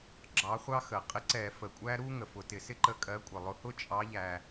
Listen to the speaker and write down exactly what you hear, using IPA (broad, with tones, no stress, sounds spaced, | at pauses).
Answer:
ɡ͡ǁ ɑ˨˦ χʷ ɑ˦ x ə˩ qʼ ɪ˦ ǀ ɛ˧˩˧ f ə˩ kʷʼ æ˦ ɾ u˦ ŋ ə˩ f ʊ˩ t ɪ˧˩˧ s ɪ˦ ǃ ə˨˦ kʼ ɜ˨˦ kʷʼ ɪ˩ lˠ ʊ˨˦ h ʊ˦ t͡ʃʼ ɑ˨˦ ʎ æ˩